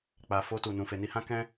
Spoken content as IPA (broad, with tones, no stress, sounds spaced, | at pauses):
k͡p a˨ f o˧ t u˨ n ũ˨ f e˨ n i˧ h ã˦ k ɛ̃˦